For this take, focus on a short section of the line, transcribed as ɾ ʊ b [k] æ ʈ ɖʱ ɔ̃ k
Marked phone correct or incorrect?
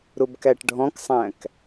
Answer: correct